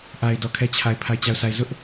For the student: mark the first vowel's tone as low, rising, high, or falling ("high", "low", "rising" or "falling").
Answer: low